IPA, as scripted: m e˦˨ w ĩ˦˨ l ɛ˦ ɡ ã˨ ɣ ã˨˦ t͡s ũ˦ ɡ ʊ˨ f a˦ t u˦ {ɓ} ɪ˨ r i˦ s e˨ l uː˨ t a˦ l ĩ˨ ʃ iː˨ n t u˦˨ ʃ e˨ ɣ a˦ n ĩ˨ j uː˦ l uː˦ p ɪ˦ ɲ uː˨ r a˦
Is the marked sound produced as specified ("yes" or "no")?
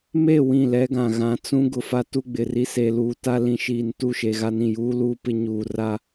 no